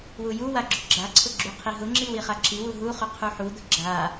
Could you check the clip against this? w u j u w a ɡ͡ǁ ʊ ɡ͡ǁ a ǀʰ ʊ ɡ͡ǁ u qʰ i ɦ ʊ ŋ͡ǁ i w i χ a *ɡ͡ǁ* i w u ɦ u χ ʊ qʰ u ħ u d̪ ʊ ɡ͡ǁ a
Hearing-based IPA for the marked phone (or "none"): ǁ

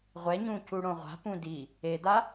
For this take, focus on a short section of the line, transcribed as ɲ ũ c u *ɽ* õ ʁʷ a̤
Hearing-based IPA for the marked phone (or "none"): ɽ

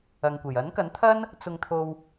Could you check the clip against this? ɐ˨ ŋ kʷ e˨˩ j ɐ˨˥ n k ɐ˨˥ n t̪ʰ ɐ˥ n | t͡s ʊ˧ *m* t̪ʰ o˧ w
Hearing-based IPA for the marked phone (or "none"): ŋ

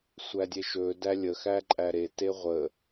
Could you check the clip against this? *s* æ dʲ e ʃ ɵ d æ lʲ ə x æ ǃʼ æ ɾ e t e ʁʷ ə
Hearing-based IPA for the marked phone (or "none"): sʷ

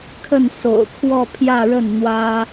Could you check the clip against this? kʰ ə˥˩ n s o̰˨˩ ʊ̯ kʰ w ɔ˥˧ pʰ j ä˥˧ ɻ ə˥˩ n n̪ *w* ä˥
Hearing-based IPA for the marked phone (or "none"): w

